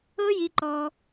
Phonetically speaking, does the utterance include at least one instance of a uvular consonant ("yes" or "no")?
no